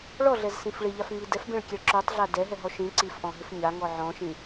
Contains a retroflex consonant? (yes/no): yes